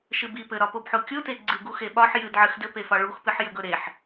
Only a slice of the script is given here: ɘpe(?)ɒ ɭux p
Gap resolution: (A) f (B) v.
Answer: A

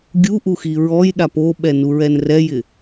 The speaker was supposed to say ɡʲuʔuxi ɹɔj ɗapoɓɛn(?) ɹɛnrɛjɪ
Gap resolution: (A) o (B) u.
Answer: B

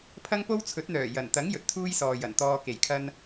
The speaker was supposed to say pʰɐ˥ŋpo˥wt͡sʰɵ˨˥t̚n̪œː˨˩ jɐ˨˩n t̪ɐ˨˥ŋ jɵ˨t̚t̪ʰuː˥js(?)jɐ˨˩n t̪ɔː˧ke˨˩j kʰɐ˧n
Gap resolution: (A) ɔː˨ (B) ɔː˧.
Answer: A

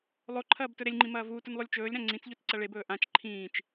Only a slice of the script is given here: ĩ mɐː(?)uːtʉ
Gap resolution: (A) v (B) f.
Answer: A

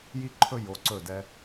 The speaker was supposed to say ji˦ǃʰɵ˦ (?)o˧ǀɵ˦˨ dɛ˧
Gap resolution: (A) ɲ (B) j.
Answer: B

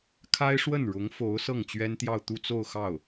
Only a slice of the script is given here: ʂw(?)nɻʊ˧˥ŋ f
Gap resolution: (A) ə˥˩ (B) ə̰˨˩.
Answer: A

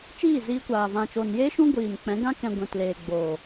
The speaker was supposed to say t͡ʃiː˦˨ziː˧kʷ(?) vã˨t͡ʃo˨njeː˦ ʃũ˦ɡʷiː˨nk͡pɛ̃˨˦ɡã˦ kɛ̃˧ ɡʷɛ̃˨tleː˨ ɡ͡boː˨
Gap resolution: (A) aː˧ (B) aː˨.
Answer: B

